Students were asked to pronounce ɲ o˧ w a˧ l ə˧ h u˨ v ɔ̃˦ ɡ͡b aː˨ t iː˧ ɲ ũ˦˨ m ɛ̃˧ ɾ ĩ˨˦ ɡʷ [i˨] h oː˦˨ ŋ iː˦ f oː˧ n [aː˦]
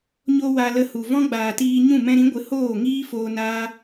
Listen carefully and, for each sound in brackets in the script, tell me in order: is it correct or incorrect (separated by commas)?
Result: incorrect, correct